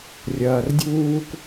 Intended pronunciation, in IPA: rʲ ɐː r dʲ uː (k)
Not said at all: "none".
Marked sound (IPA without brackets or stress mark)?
k